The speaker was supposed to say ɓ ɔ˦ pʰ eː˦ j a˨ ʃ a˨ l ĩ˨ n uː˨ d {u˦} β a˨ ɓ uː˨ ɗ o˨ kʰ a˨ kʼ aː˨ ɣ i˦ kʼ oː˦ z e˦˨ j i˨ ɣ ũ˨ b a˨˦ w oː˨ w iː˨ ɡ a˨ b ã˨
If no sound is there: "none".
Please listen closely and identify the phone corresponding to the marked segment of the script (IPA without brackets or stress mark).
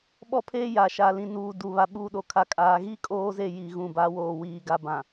u˨